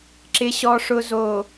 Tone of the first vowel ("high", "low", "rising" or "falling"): low